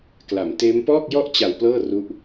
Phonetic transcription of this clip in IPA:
kla˩˦mteː˦˥m pɔː˥˩k̚jɔ˥˩ʔ t͡ɕa˨˩w plɤː˥˩ru˦˥ʔ

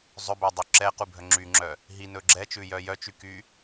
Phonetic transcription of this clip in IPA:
zˤɵbɵdˤy ǁɛqubʱœ ŋ͡ǁyŋ͡ǁœ | ɦinɵ ɡ͡ǁɛt͡ʃʉjœ jœt͡ʃyky

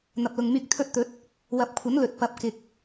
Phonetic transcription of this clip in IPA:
n̪ɐ˨p̚lʊ˨ŋmyː˧k̚ t̪ʰɵ˧t̚t̪ɵ˨˥t̚ | wɐ˨˥p̚kʷʰɐ˨˥n lɵ˨t̚ pɐ˨˥p̚kɪ˨k̚

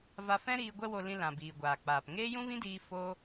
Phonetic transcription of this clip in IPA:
va˧fɛ̃˦ ɾiː˧ ɡʷɛ˦wo˧lĩ˧ lã˨ biː˨ɡʷaː˨k͡paː˨p ŋeː˦jũ˦vĩ˦diː˧ fo˦

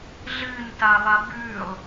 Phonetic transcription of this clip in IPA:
ɮɨnta lˠabʉlˠ

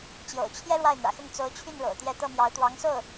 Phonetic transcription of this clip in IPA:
t͡ɕjo̰˨˩ʊ̯t͡ɕʰjɛ˥ ɻwa˥˩ɪ̯n̪ä̰˨˩xʊ˥˩ŋ t͡so˧˥ʊ̯t͡ɕʰy˥˩n ɻo̰˨˩ʊ̯t̪jɛ˥˧ t̪ɤ˥˩mjɑ˧˥ʊ̯t̪wɑ˧˥ŋso˥˩ʊ̯

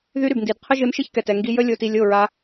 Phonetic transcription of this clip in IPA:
ðy˦ɾy˨bndi˨d qʰə˦ʒe˧m ʃe˦çkɛ˨tɛ˨ ŋɡi˧jə˦ lʲo˦ ti˧lʲ o˦˨ɹa˧

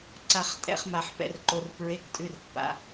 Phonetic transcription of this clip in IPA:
ǀa˩χ tʼɛ̰˩˧˩χma˩ħ pɛ̰˩rǃo˩rpɹe˩˧˩k tʼʉ˩˧˩rpːa̰˩˧˩

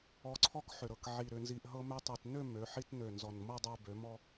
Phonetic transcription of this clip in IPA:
ɔ˧ǀʰɔ˥k ħʏ˨˩ ɾɤ˨˩kʕi˨˩ ɾʏ˧nzi˧ʔɦɤ˥ mø˧tˤi˨˩t nø˥˧ mø˩˧ħi˧tnø˨˩ nzɔ˨˩nmɤ˥˧ dˤø˧ bø˩˧mɔ˧

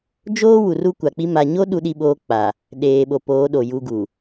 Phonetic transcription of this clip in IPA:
d͡ʒoː˦ wu˨ru˦kʷa˨k͡pi˦ ma˨ɲo˦ ɗu˦ɗi˦ɓoː˦k͡pa˨ | ɗeː˨ɓo˨poː˨˦ ɗo˨ju˦ ɡu˨

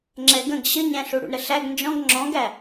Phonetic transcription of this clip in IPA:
ŋ͡ǁɛɡə̃ɡ ɕəɲæ̃ɬu ɽṵɳɾəɬæɡ nd͡ʒɔ̃ɡ ŋ͡ǁɔ̃ɡæ

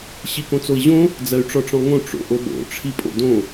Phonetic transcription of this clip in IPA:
ɕikõt͡soi̯ʑõ | d͡zɜy̯ʈ͡ʂɔʈ͡ʂɔ̃ŋõ ʈ͡ʂo̰ʔoɓo̰ ʈ͡ʂʰipʼo̰dõ

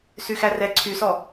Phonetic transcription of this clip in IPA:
syxærɛ ǀʰysɔ

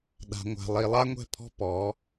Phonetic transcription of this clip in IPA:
ɗa̤˨ŋʷa̤˨ lˠi˨lˠa˦ŋʷɛ̤˦˨pʰɔ̤˦ pɔ˨˦

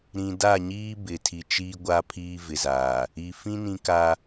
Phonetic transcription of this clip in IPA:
ɾĩ˨da˦˨ɲiː˦ bɪ˨tʰi˨ t͡ʃiː˦ɡʷa˦pʰiː˦ vɪ˨zaː˨ | i˨ fĩ˦ nĩ˦ ka˦

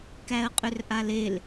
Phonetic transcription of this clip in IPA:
kæə̯qʼʏrʔalel

